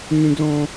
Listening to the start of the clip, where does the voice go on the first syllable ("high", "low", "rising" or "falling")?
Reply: high